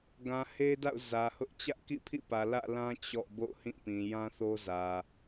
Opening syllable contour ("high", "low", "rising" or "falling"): low